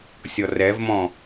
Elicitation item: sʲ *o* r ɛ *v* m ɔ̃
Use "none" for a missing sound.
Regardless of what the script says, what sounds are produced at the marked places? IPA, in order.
ɔ, v

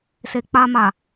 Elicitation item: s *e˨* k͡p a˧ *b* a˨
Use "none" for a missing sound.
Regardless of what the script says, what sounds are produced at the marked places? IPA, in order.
e˨, m

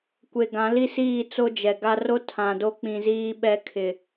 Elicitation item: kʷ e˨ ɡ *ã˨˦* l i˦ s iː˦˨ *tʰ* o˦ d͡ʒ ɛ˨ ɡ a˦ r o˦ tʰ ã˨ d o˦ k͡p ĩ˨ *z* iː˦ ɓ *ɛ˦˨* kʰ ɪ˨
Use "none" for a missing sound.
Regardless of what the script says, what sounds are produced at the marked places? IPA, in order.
ã˨˦, t͡s, z, ɛ˦

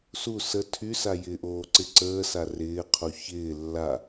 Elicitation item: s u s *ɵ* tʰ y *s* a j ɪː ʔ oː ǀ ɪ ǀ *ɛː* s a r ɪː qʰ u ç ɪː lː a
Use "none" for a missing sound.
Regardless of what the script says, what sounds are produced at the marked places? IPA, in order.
ə, s, əː

